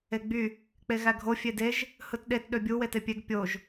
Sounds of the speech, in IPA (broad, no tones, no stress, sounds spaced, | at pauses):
e ɡ͡b y | k͡p e ɣ æ ɡʱ o fʲ e d e ʒ | h ɯ t ɗ e t ɗ ø bʲ u w e t e pʲ e ɡ pʲ o ʒ